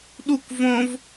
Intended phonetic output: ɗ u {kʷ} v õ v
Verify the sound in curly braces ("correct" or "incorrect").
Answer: correct